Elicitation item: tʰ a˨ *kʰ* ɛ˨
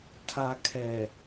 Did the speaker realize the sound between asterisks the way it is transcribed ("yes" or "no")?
yes